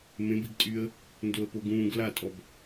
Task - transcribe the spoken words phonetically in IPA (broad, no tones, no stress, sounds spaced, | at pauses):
m ẽ b i ɡ tʼ y ə̯ | n d o ə̯ p o ɡ ũː ɡ l a tʼ ɔ b